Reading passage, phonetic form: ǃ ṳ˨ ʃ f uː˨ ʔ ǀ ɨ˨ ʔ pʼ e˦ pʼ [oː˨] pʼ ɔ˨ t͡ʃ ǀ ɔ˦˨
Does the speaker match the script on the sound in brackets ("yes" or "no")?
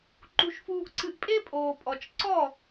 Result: yes